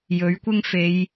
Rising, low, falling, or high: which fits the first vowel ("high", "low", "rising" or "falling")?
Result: rising